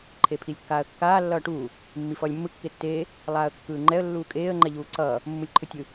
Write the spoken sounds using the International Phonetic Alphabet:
ǃʰ e pʰ i lʲ kː aː ə̯ kː aː lː ʌː ʈ uː | mː i f ʌː lʲ mː ɯ kː e tː eː | lˠ aː ə̯ kː ɯː ŋ͡ǃ ɛ ə̯ lː uː kʼ eː ə̯ ŋ͡ǃ ɛ ʎ uː ǀ ʌː | mː u lʲ ǃʰ ɯ tʲ ɯ

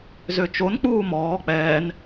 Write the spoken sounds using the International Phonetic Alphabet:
z ø t͡ʃ o n k͡p uː m ɔː k͡p ɛː n

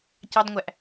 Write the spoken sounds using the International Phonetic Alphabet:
c ɑ d ŋʷ æ ʔ

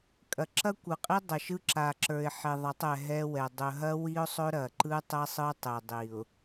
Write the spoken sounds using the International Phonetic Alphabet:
kʼ ɐ˨ ǁ ɐ˦ kʷ ɯ˨ qʼ i˦ dˤ ɐ˨ ʃ ɯ˦ ǁ a˨ ǁ ə˞˨ ɪ̯ ħ e˨ ðˤ ɐ˨˦ tˤ ɛ˨ ɦ ɛ˦ w ɛ˨ dˤ ɵ˨ ɦ ɐ˦ w i˦ ʊ̯ sˤ ɵ˦ ɾ ɐ˨ ǃ ɯ˦ tˤ ɛ˦ sˤ ɯ˦ tˤ e˨ dˤ i˨ ʊ̯

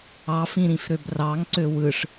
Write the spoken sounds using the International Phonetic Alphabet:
ɑ f ĩ ɾ ĩ f ɾ ø b r ɑ ŋ ǀ ø w ɯ ʂ

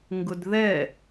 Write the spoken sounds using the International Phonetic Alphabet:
ŋ ɡ ʊ d ð ɛ

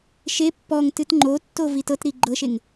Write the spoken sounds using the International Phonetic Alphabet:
ʃ e pː ɔ ŋ t ɨ t ŋ͡ǃ o tː o v i t ɤ t ɾ i ɡ͡ǃ ɤ ʃ e ŋ

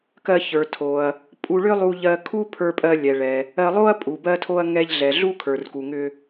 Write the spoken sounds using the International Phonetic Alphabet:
k ɜ˧ ç ə˞˩ tʰ o˩ ɐ̯ | pʼ u˧ ɭ ʏ˥ lˠ u˧ ʎ ɜ˧ kʰ u˥ pʰ ə˞˧ pʼ ɜ˧ lʲ ɛ˩ ɭ ɛ˩ | ɜ˧ lˠ o˥ ɐ̯ pʼ u˩ b ɜ˧ tʰ o˧ ɐ̯ ŋ ɛ˧ ʎ ɮ ɛ˩ ɮ u˥ kʰ ə˞˩ r k u˩ ŋ ʏ˧

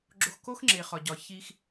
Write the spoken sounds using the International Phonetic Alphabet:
ɡ͡ǁ o˧ x k o˦ x ŋ͡ǁ e˨ χ ɒ˨ ɟ ɒ˨ ç i˧ x

